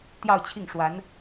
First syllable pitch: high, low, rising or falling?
falling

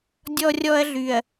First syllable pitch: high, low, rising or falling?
high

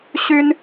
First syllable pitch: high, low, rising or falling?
high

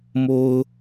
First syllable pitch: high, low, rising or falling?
high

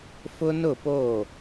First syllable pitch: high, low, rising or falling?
high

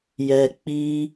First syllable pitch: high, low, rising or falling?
low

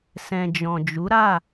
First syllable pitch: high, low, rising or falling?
low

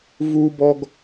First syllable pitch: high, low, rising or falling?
high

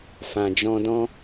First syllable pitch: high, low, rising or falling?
low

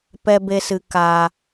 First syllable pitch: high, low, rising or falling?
high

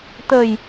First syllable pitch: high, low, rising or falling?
low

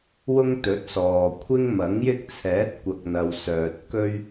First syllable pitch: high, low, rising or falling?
high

